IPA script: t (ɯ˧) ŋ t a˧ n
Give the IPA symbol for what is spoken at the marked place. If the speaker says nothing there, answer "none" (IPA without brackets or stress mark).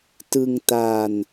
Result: ɯ˧